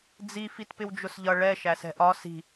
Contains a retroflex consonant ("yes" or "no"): yes